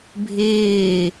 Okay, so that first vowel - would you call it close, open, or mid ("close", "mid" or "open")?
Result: close